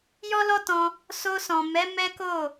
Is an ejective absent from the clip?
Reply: yes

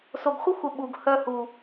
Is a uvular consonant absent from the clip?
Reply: no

